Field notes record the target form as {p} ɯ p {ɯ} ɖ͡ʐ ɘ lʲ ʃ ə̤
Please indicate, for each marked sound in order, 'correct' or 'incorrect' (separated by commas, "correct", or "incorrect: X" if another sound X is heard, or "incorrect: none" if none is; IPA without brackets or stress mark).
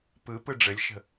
correct, correct